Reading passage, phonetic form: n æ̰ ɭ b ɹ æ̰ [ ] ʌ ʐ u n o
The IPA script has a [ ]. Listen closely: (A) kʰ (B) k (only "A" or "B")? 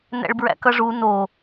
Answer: B